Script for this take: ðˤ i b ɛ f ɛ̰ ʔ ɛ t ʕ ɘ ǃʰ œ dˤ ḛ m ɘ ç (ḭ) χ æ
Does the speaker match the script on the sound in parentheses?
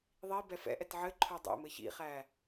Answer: yes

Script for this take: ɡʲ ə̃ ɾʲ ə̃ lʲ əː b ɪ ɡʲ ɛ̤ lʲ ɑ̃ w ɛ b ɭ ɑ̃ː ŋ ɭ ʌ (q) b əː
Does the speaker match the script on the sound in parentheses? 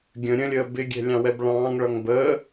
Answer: no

